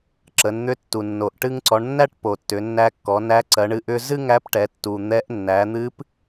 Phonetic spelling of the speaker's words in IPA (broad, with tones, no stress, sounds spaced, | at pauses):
ǁ ə˩˧ n n̪ ʏ˧˥ tː u˩ nː o˩ ʔ ʈ ɨ˧ ŋ ǀ ɔ˩˧ ɳ nː æ˥ ʈ p o˩ tː ʏ˩˧ nː æ˧ kː ɔ˩˧ n æ˧˥ ǀ ɜ˩˧ ɳ ɨ˧ ʔ ʏ˧ z ɨ˥ ŋ æ˧˥ p ʈ ɛ˩˧ tː u˩ n̪ ɛ˧˥ ʔ nː æ˩˧ n̪ ɨ˧˥ p